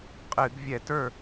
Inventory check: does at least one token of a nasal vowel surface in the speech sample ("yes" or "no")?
no